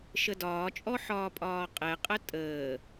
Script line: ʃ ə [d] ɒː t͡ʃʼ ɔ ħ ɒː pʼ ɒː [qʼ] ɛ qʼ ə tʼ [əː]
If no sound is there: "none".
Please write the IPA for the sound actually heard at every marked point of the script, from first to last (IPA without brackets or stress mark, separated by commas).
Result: d, qʼ, əː